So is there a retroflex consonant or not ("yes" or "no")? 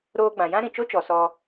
no